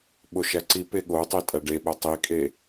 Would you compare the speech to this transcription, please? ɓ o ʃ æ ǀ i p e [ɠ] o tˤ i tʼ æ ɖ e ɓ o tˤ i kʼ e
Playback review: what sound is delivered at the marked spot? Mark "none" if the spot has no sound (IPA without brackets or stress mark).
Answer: ɠ